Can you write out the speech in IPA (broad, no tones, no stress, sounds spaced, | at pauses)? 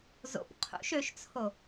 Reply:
z o̰ p qʰ ṵ ʃ ø ʃ t͡sʰ o